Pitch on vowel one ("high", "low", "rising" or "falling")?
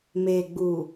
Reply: low